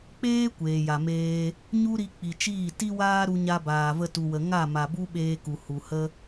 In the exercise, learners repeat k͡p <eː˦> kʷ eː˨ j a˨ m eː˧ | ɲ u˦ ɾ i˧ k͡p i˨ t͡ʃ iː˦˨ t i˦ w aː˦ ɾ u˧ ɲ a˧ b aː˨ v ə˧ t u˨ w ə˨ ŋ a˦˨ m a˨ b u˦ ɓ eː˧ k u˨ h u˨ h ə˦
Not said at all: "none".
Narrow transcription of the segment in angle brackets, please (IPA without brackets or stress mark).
eː˦